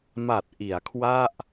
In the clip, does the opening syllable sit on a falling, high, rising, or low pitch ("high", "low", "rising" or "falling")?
low